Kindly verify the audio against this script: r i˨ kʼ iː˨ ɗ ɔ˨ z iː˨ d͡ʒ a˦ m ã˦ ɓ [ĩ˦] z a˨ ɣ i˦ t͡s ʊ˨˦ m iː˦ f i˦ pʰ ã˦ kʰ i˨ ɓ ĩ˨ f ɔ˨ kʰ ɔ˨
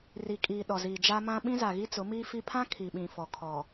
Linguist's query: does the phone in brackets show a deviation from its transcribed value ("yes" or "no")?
no